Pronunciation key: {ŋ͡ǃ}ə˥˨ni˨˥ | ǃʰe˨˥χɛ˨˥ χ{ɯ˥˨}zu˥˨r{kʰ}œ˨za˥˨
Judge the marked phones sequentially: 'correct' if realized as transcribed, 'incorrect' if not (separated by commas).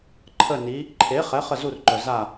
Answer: incorrect, incorrect, incorrect